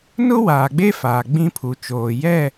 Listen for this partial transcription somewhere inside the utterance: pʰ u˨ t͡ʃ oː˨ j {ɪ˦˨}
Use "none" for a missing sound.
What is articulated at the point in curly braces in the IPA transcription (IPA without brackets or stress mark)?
ɛ˦˨